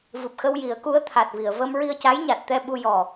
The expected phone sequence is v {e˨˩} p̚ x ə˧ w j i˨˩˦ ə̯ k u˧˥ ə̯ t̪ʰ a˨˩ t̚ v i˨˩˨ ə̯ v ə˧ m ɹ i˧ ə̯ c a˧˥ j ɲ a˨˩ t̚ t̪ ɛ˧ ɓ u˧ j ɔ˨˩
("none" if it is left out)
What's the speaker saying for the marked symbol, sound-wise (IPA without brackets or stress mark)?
ɨ˨˩